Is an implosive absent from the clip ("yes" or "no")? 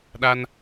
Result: no